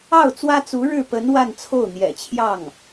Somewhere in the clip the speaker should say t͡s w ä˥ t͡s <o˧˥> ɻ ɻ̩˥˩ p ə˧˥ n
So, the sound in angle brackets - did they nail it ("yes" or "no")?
no